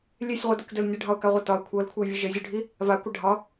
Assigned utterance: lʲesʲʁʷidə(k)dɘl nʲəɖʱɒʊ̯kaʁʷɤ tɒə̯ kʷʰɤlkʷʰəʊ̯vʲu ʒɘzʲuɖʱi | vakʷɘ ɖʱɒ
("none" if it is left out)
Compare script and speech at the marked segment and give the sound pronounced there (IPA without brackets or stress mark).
k